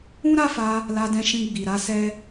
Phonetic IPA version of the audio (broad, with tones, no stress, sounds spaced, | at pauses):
ũ˦ ɾ a˦ f a˧ | l a˧ d ɛ̃˧ ʃ ĩ˧ ɡ͡b i˨ ɾ a˧ s ɛ˦